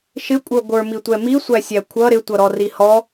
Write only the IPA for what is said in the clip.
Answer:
ʃɪkʷʼə˞ ɡʷə˞mitʷɛ misʷæ sʲækʷʰʌ ɾɪtʷʌɾɔ rihɔ

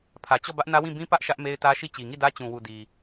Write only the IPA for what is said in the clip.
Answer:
pʰä˨t͡ɕɔ˦˨bä˦ʔ nä˦wĩ˦˨ bĩ˦pä˦ʔ ʃä˦ʔ me˦ɪ̯tä˦ʃi˦˨ t͡ɕi˨ŋi˦˨dä˦ t͡ɕũ˨wu˨ di˨

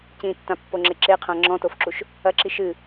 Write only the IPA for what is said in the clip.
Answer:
cĩtːãpːoŋ͡ǁe ǁeqʰã ŋ͡ǁɔ̃tofǁuʃ | ɐǁi ʃɨ

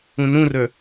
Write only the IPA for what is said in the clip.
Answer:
ũnũrə˞

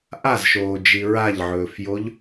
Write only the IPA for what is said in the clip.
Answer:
ʔazʃoːd͡ʒi ɹaʎʕɵːfjoʎ

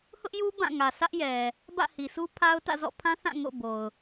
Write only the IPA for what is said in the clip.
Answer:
hʊ˦ʔju˦ bã˦˨ŋä˨sʰä˦ʔ jɛ˨ | bä̰˦˨hi˨sʰu˦pʰa˦ʊ̯ tä̰˦˨zɔ̰˦˨pʰã˦θã˦˨ ŋo̰˦˨bo˨ʊ̯

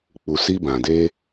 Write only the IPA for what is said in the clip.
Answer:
k͡pu˨si˧bã˨de˧

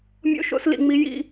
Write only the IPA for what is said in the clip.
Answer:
mʲo̰˦ʃo̰˦slḭ˧ŋ͡mi˦ jḭ˦

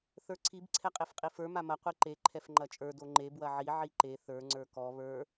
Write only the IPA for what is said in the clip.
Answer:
θə˞ǀʰib ǀʰɛqʼefqʼifə˞ mamɐ qʷiǃe ǃʰɛfŋ͡ǃɐt͡ʃʼə˞ doŋ͡ǃe bwɐʕi ʕiǃe θə˞ ŋ͡ǀə˞kɔ βə˞

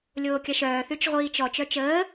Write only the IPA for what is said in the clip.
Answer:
lʲoːkʲɐʃœː θyt͡ʃʁʷiːt͡ʃɔ t͡ʃœt͡ʃəː

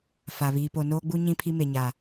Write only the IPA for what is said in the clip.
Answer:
fa˨ βiː˨po˨noː˦ɡ͡bu˦ ɲĩ˦pʰi˦me˨ɲa˨

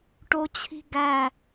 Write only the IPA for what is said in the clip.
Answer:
ʈot͡ɕʰi̤ ɡæ

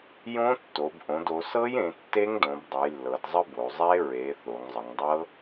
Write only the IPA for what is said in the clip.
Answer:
jõ˦˥tːo˩˧b ʔõ˩˧do˩˧sɤ˦˥jẽ˩˧ tːe˦˥ŋdõ˩˧bdˤɘ˩˧j lːɤ˩˧dzˤə˦˥ bo˩˧zˤe˦˥ ɹe˩˧ θo˩˧ŋzˤə˩˧ŋdˤɤ˦˥

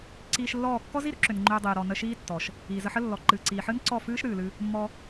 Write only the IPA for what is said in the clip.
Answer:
ǀiː˧ʃlːɔː˦˨ kːɔ˦zi˦ɾʏ˦ǁʏ˨n ŋ͡ǃʏː˧dˤiː˨ɾɔ˨ nə˧ʃiː˦tːɔ˨ʃ | iː˨zə˧ħə˦ lːɔ˨ǃɨː˨ǀiː˨ħɨ˦n ǀɔ˦˨fɨː˦ʃ ɾɨː˨lɨ˦ | mːɔ˧

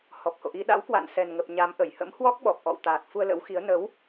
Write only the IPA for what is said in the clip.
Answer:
hɔ˨˩p̚ho̰˧˨ʔi˧ ɗa̰˧˥wkwa̰˧˨n sɛ˨˩nŋə˨˩p̚ ɲa˨˦mʔə˧˩j hə̰˧˥mhwɔ˦˥k̚ɓɔ˨˩p̚ ʔɔ̰˧˨wt̪aː˨˩t̚ fu˧ə̯lə̰˧˥wxi˨˦ə̯ nə˨˦w

